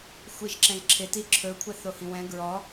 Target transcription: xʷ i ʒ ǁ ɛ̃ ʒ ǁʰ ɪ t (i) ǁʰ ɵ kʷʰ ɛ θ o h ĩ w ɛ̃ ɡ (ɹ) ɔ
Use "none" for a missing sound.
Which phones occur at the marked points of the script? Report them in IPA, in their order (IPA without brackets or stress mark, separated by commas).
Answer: i, ɹ